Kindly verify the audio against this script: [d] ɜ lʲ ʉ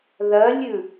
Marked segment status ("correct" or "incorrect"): incorrect